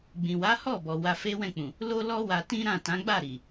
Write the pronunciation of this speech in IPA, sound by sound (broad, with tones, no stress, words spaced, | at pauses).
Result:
ɡ͡bĩ˨wa˨˦ hɔ˦˨bɔ˨ wa˧fe˦wɛ̃˦˨k͡pũ˨ | lo˦lɔ˦wa˧ tĩ˦ ɾã˦˨tã˨˦ɡ͡ba˦˨ ɾi˨